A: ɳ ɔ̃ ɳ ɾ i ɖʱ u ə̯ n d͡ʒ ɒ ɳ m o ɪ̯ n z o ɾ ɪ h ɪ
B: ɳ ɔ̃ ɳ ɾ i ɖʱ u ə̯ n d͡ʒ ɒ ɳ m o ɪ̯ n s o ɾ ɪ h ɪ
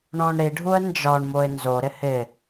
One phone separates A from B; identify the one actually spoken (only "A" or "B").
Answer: A